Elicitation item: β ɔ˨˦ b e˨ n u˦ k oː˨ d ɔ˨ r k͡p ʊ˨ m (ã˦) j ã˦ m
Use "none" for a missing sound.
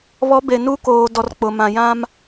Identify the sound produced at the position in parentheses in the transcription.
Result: ã˨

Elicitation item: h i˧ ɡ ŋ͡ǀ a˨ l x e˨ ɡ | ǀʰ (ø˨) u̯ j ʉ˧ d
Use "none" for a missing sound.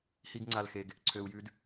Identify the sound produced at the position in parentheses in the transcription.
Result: ø˨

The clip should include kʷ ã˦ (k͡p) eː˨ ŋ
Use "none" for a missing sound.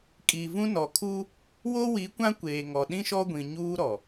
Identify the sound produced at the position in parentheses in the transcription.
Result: kʷ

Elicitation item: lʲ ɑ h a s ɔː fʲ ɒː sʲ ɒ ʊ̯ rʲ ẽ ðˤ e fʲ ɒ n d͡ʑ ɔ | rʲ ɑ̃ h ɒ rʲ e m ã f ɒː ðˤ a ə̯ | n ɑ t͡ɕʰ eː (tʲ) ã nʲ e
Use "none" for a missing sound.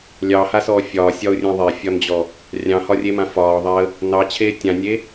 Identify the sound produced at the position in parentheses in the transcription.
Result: tʲ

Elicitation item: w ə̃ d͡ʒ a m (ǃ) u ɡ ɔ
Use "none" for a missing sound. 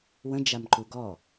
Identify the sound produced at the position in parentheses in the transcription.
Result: ǃ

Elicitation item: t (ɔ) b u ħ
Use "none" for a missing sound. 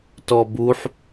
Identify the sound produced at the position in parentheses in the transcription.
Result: ɔ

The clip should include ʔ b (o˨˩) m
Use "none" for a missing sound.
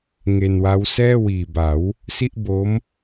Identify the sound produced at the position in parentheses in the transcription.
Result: o˦˥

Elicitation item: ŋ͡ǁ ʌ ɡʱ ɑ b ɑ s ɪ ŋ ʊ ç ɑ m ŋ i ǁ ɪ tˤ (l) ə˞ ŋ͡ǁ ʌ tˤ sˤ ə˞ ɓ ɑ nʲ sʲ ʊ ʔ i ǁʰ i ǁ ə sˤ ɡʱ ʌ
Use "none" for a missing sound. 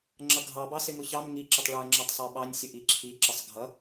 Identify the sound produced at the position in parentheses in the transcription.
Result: ɭ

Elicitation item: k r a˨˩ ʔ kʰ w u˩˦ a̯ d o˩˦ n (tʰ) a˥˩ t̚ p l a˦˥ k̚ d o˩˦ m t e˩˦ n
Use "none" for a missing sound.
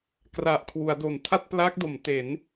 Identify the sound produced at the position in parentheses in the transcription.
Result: tʰ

